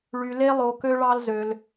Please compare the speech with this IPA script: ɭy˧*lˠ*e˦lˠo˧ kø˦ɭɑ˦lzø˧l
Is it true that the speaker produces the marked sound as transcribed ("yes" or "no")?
no